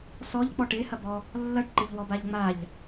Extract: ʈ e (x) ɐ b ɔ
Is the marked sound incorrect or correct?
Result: incorrect